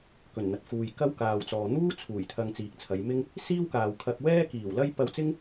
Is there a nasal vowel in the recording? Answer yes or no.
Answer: no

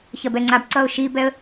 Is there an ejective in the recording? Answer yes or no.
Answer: no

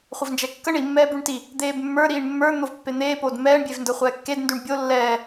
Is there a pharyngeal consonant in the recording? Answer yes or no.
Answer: no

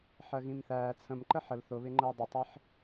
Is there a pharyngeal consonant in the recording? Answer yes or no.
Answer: yes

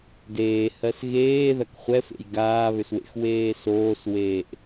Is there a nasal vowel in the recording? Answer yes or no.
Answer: no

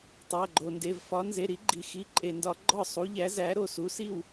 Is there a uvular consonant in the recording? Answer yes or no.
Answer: no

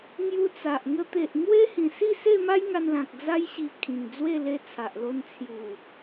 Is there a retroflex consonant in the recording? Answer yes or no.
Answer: no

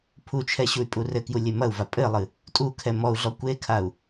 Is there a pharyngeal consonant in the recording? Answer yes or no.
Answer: no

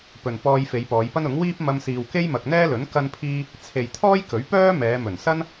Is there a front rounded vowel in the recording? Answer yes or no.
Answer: yes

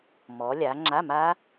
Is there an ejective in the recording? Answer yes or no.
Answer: no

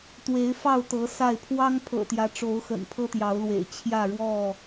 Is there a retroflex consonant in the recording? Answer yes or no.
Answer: yes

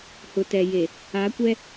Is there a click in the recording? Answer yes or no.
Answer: no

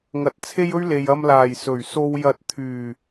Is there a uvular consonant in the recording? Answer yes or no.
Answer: no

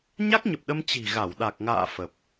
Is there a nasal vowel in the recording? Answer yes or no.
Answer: no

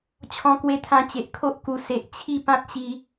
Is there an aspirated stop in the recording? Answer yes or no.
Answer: yes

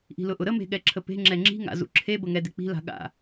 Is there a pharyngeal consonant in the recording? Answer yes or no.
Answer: no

